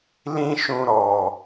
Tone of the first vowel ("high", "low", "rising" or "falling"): high